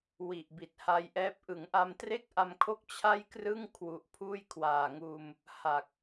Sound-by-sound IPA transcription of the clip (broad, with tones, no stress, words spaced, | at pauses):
wi˨˩ʔbi˨˩t̚ha˧jʔɛː˦˥p̚ ʔɯ˩˦ŋʔa˧mtre˥˩k̚ʔa˧m kʰo˥˩k̚t͡ɕʰa˥˩jkrɯ˥˩ŋ kʰwu˨˩ʔpʰuː˥˩jkʰwaː˨˩ŋuː˧m | ha˨˩k̚